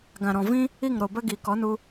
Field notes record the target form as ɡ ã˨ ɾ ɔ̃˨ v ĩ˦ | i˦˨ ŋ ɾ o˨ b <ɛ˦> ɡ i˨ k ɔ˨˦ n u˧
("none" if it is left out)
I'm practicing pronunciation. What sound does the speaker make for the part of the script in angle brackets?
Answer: ə˦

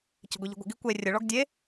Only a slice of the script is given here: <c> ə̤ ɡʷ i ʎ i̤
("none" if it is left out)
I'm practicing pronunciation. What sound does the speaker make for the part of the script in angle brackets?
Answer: c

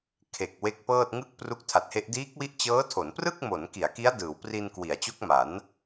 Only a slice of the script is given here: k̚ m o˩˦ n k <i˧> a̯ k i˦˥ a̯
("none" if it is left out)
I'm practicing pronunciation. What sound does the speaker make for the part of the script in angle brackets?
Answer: i˩˦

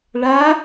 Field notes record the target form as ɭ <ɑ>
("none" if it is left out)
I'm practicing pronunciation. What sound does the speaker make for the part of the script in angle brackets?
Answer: a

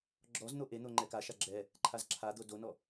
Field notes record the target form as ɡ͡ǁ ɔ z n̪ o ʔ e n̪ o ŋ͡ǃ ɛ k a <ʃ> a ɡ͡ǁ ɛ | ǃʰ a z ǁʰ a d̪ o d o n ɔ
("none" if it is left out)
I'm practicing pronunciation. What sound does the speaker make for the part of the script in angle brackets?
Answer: ʃ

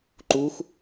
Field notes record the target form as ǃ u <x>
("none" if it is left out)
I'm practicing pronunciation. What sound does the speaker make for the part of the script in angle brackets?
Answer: x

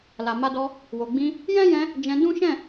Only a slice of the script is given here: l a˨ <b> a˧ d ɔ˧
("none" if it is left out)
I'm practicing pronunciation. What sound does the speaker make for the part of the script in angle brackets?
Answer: m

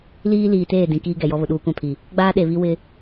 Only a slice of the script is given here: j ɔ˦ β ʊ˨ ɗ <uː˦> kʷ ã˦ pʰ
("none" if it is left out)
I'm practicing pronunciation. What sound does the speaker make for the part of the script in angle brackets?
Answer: uː˦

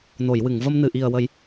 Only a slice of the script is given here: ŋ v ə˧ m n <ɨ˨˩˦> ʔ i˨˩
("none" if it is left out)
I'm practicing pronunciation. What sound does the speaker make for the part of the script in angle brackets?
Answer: ɨ˨˩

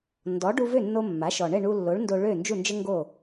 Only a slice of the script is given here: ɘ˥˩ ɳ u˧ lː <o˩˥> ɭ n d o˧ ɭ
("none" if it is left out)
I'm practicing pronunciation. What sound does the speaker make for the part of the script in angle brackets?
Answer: o˩˥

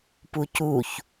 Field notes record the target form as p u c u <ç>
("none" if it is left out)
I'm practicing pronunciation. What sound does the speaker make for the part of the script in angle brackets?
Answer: ç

